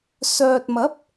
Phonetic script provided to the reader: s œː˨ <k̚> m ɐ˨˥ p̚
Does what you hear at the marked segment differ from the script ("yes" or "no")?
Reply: yes